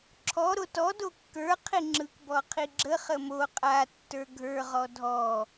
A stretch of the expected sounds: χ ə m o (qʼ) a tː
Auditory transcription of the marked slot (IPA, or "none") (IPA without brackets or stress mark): qʼ